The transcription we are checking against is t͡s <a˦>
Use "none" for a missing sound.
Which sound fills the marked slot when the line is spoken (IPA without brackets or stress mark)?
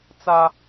a˦